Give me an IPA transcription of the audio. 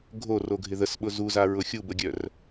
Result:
ɡʱoroɡʱɪ ðəsɓʊ zuzaɹʊ xʲubəɡʲœr

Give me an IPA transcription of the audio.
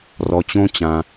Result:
rɔ˧t͡ɕõ˥t͡ɕã˧

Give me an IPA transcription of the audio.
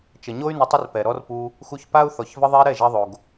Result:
t͡ʃə˨ɲo˦y̯ nə˧tˤə˦rpɛ˨ ɾɔ˦rpu˧ | xu˧çpa˦u̯θɔ˨ç və˧ðˤɛ˧ ɾɛ˦˨ʒɛ˧ðˤo˨ɡ

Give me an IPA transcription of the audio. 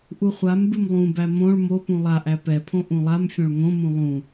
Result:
ʔuχʷambɨm lˠũbæ mõɭ mopũ lˠaʔæ pɛpʰõ ʔũlˠamfʲõɭ ŋõmũ lˠũ

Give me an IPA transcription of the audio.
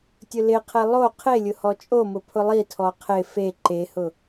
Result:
tʲʊlɪqʰɛ lˠo qʰelʲʊ hɔt͡ʃʼomʊ pʰʊlˠitʰɔ qʰɪ fe ǃehʊ

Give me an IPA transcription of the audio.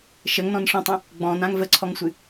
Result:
ʃəŋnɔ̃nʂɔ̃tˤə̃ | ɡ͡bɔ̃nãŋ vəǀʰɔŋsʷɨ

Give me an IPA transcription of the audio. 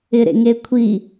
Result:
ɪɾḛŋekʷʰi

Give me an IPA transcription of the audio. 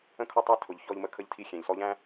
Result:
ə̃˦˨kʰɔ˦ tˤæ˦tʰʊ˨ʎ çɔ˦ʎmə˦kʰə˦ʎtʰi˦ xʲæ̃˨ʎsɔ˦ʎæ̃˦

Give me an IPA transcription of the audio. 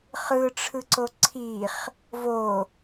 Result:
χɯʈ͡ʂʰɯǀo ǀʰiχ | vo

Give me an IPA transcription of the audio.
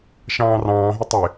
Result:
ʃɑ̃ːrɑ̃ːɦɪ tˤɪ

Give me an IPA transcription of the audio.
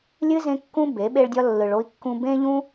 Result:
lʲɨ˦ zẽ˦ kːũ˦be˨˦ ɓe˧ɭdʲɒ˧lːɯ˨ɭ o˧i̯kːũ˧ bẽ˦ʎũ˦

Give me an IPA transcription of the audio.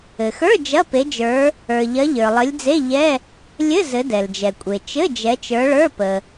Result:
ɘ˩xə˞˧˥˧ d͡ʒɐ˧˥˧pe˨˦d͡ʒə˞˨˦ | ə˞˩ʎɐ˨˦ ʎə˞˩lˠɘ˨˦lʲd͡ze˧˥˧ ʎɛ˧˥˧ | lʲɘ˧˥˧ zɘ˨˦dɛ˩ld͡ʒɛ˩kʷʼe˩ t͡ʃɘ˧˥˧ d͡ʒɛ˨˦t͡ʃə˞˨˦ɭə˞˧˥˧ pə˩

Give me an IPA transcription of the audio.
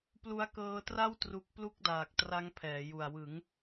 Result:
plu˦˥a̯kɤː˦˥tra˥˩w tru˦˥k̚ plu˥˩k̚daː˨˩k̚ tra˦˥ŋpʰɛː˩˦ju˨˩a̯ wɯ˩˦ŋ

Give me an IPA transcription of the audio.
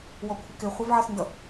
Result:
wɔkʷʰɪkɪ χʷʌvʕʌsndʌ

